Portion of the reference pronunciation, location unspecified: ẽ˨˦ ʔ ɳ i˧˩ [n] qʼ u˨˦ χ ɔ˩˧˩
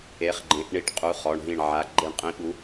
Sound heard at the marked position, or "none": ʈ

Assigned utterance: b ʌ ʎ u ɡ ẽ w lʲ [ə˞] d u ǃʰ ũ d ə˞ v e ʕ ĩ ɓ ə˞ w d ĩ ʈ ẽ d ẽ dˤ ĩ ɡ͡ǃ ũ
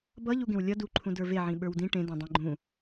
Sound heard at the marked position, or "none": ʌ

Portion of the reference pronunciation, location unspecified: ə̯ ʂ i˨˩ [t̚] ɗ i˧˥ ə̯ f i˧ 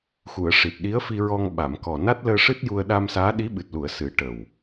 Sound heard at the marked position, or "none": t̚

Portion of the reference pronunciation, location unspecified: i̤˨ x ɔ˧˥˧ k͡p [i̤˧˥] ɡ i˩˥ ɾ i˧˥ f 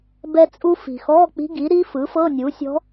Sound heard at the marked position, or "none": i̤˧˥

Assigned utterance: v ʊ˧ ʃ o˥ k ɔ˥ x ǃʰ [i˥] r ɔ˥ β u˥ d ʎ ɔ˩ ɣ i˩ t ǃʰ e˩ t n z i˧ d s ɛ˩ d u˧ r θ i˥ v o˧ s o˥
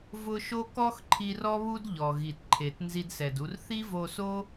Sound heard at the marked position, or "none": i˧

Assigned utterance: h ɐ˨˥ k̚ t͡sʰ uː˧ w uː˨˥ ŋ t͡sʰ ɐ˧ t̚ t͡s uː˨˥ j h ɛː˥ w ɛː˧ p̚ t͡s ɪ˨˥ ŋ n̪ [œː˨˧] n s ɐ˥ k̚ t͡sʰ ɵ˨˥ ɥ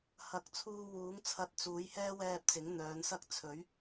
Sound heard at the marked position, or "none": œː˨˧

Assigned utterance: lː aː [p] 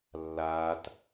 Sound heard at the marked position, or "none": t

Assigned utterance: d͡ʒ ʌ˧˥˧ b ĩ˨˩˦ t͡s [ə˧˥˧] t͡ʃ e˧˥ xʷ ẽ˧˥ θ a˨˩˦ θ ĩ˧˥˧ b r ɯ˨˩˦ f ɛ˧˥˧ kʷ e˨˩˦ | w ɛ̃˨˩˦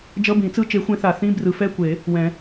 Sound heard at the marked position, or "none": ɯ˧˥˧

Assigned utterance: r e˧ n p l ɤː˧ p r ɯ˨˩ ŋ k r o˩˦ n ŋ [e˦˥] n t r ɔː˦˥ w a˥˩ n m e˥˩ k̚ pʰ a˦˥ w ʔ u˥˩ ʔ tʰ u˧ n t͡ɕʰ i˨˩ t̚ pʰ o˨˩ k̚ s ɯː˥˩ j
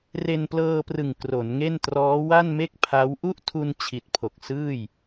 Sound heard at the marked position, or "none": e˥˩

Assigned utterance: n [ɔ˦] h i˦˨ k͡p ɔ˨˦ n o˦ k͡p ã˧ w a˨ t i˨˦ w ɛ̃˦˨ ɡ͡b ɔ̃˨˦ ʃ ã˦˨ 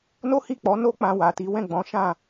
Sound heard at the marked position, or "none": o˦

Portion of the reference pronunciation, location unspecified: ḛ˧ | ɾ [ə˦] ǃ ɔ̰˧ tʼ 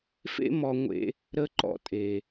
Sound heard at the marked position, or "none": ə˦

